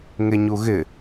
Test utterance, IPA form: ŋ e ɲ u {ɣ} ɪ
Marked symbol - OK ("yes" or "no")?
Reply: yes